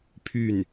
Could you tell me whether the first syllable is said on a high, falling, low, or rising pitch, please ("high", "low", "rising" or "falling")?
falling